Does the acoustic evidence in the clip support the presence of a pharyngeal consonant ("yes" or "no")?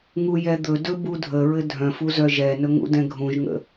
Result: no